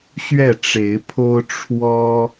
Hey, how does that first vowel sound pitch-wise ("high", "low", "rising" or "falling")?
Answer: falling